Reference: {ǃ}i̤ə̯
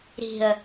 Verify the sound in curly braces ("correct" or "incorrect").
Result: incorrect